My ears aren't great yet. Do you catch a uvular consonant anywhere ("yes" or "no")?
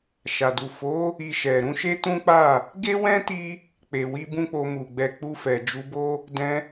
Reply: no